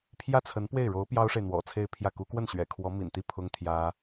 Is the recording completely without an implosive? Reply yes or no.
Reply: yes